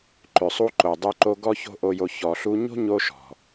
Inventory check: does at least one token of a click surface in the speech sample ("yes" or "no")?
yes